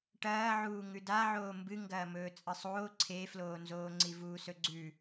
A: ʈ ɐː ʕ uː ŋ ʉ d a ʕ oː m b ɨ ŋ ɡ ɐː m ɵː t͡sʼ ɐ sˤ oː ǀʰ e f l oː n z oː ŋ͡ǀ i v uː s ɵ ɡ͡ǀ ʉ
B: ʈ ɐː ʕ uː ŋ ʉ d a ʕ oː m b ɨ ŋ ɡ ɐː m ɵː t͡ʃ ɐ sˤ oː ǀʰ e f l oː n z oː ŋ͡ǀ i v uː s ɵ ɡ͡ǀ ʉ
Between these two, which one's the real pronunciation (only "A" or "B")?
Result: A